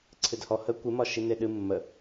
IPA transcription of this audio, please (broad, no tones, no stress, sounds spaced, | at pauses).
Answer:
ǀʰ ɨ d h ɔ h ə kʷ ɨ m ɒ ʃ i n e ɗ ɨ mː ə